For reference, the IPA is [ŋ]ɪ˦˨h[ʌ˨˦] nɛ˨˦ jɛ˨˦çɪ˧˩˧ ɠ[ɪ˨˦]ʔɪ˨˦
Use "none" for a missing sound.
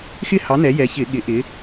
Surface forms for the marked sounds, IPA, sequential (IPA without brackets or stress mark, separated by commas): x, ɑ˨˦, ɪ˨˦